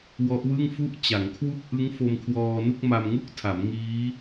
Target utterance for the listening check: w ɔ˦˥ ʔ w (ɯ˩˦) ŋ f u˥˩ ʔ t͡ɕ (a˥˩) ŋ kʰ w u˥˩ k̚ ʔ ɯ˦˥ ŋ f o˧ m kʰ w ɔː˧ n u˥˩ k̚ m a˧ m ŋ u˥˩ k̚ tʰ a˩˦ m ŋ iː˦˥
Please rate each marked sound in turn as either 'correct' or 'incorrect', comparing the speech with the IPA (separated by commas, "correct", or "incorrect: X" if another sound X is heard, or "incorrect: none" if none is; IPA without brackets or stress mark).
incorrect: ɯ˥˩, incorrect: a˩˦